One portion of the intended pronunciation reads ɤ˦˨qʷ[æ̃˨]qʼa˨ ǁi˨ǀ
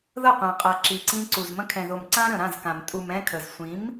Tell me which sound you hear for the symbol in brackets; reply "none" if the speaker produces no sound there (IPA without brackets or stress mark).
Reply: ã˨